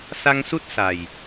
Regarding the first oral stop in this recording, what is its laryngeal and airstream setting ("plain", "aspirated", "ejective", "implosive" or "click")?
plain